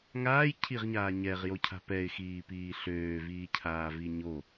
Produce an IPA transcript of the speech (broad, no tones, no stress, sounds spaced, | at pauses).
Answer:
ŋ aː j cʰ i ʁ ɲ aː ɲ ɛ ʁ j o cʰ a̤ p ɛ ɪ̯ x iː p iː ɬ øː v iː cʰ aː v i ɲ o